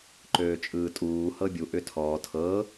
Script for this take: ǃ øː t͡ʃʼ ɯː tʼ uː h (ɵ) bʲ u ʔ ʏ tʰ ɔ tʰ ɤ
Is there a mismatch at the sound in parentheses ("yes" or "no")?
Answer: yes